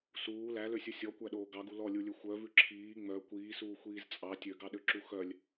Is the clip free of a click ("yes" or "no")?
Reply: no